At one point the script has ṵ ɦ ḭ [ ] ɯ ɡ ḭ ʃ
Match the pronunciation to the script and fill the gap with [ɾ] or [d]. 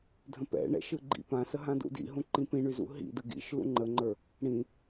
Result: d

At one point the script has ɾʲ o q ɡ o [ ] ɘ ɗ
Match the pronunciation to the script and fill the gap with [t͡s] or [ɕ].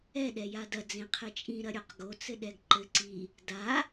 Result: t͡s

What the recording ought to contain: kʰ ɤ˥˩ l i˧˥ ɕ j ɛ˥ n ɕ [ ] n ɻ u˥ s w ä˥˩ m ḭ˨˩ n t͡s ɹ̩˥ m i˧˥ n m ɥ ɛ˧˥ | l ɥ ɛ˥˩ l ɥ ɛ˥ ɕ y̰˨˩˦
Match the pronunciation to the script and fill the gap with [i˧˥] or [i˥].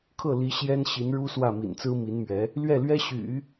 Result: i˧˥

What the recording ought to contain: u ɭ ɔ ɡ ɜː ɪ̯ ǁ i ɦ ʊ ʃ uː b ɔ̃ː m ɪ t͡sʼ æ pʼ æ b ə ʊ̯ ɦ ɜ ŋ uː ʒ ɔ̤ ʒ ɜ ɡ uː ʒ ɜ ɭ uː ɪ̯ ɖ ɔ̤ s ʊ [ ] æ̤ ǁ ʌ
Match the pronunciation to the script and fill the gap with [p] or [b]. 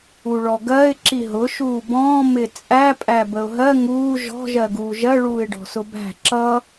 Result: b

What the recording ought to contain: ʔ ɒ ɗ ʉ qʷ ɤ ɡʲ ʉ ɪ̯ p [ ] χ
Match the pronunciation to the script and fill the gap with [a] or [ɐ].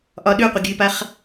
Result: a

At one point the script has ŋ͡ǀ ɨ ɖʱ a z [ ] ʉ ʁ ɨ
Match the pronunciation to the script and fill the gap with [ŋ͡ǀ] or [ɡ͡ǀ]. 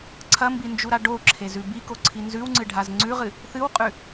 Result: ŋ͡ǀ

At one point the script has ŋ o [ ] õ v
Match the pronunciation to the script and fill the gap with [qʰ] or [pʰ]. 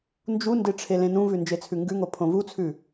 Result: pʰ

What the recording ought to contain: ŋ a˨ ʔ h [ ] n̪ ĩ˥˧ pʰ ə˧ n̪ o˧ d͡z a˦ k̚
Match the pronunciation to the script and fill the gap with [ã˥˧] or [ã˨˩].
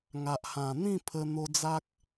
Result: ã˨˩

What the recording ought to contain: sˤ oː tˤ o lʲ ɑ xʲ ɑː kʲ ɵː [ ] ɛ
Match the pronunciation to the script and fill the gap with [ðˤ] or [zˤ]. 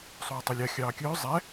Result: zˤ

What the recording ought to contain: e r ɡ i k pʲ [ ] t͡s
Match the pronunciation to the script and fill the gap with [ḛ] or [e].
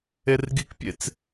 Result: ḛ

